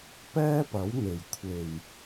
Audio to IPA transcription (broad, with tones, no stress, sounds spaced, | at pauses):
p ɛː˥ p ɐ˨˥ w n̪ e˨˩ j kʷʰ e˨˩ j